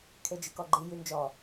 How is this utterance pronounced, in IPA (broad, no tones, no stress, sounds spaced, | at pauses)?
kʰ e d͡ʒ ɨ k ɔ ɡ͡ǃ i j y n d͡ʒ ɔ